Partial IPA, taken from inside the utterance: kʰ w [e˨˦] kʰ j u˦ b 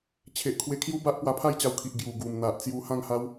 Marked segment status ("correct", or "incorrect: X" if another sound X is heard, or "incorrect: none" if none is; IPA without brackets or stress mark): incorrect: e˧